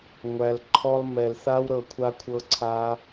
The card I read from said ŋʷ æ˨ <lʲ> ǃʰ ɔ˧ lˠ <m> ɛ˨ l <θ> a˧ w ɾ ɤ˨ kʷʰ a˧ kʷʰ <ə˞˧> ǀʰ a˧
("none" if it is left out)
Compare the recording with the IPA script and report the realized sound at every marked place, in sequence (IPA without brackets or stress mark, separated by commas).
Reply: l, m, θ, ɤ˧